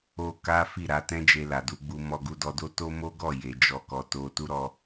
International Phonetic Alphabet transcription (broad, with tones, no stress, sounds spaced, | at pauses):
o˧ k a˦ f i˦˨ ɾ a˧ t ɛ̃˦ d͡ʒ e˧ l a˨ d u˧ ɡ͡b u˧ m ɔ˧ ɡ u˧ d ɔ˧ d o˦ t o˦ m o˦ ɡ ɔ˦˨ j e˨ d͡ʒ ɔ˧ k ɔ˨ t o˧ t u˦ ɾ ɔ˧